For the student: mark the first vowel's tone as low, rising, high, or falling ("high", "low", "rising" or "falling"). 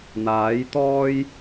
rising